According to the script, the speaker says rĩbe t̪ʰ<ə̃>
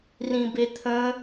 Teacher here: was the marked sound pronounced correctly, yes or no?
yes